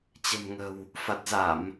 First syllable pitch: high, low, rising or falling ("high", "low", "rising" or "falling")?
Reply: low